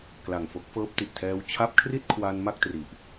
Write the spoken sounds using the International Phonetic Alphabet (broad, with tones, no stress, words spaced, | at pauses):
kla˨˩ŋfo˦˥k̚ fɤː˦˥p̚ti˨˩ʔtʰɛː˦˥w t͡ɕʰa˦˥p̚kʰri˥˩t̚ kʰwa˧n ma˥˩k̚tri˨˩ʔ